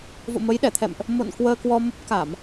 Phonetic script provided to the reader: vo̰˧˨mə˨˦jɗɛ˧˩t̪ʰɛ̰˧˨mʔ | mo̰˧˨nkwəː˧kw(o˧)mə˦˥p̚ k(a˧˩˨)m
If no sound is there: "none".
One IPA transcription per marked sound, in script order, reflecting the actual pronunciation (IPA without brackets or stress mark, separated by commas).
ɔ˧, a˧˩˨